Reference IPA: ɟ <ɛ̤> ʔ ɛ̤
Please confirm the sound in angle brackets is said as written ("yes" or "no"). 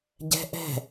yes